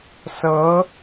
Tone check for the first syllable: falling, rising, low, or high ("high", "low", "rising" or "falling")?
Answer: rising